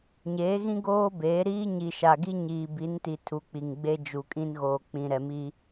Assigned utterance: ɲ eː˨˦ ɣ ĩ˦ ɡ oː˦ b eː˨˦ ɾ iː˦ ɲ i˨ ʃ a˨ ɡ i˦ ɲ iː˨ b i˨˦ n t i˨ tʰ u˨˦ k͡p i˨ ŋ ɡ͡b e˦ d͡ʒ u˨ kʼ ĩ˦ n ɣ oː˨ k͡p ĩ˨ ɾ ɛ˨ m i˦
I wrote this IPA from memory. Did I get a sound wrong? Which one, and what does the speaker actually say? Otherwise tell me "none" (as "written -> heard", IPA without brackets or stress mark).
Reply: none